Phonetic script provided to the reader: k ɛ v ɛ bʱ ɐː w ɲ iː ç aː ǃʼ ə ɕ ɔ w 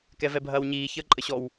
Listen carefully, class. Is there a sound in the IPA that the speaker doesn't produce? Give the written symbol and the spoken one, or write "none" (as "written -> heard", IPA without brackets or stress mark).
aː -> əː